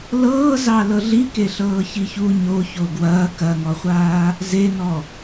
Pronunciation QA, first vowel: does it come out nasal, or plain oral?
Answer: oral